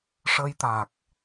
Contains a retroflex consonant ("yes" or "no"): yes